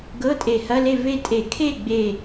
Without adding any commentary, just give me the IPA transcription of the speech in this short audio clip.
ɡ ɤ˧˥˧ tʼ e˧˩˧ h ɐ˧˥˧ l e˥˨ v e˥˨ tʼ e˧˩˧ kʰ e˥˨ ɡ͡b e˥˨

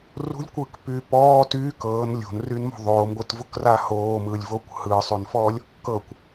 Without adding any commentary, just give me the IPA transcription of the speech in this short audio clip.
r ṳ lʲ kʷ ɯː k p yː p ɔː t yː k ɤː n lʲ o̤ n r y n m o̤ ðˤ oː m ɡʷ ɯ t v u k r a h oː m ɯː lʲ v oː kʷ h ɯː sˤ y n f ɔː lʲ | k ɤ kʷ

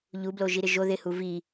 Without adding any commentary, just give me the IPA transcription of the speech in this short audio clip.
ʎ u b l o ʒ i ɾ ɪ ʒ o ð ɪ h u v i

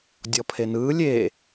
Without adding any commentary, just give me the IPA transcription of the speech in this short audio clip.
dʲ ɔ pʰ e n ɯː lʲ eː

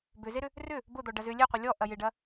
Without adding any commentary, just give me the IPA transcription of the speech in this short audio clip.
b ʏ z e ɾ ʏ | r ʏ | b ʊ d̪ ɔ ɖ ɐ z ʏ lʲ e qʷ ɪ lʲ ɔ ʔ ɐ j ɪ ɖ ɐ

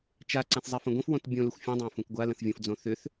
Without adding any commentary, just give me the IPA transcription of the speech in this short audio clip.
t͡ʃ a ǀ ã θ zˤ ɛ f ə̃ ɡʷ ə̃ f w õ t bʲ õ l ə xʷ fʲ ũ dˤ ãː f ũ k ɡʷ a l ə̃ θ vʲ õ f d͡z õ θ ʏ θ

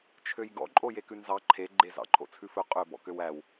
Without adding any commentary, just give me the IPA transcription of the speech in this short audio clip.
t͡ʃʰ ø j ɡ ɔ̰ ǃʼ o j e k ʉ n z ɑ ǃʰ e ɡ͡ǃ e z ɑ̰ ǃʰ o̰ t͡sʰ ʉ f ɵ qʼ ɵ b ɔ̰ k ø w æ w

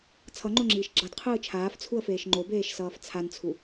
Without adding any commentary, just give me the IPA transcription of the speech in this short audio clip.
t͡sʰ ʌ ŋ͡ǃ o ŋ͡ǁ iː ʃ ɡ͡ǁ ʌ d qʰ ɯː t͡ʃʰ aː f t͡sʰ u ə̯ f eː ʃ ŋ͡ǃ o b eː ʃ s ʌː f t͡sʰ a n t͡sʰ u

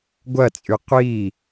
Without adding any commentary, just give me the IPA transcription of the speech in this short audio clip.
ɡʷ ɐ t͡sʼ y qʷ i

